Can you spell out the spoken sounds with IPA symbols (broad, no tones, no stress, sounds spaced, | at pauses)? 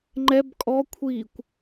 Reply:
ŋ͡ǃ ɛ b kʼ ɔ kʷʰ iː kʷ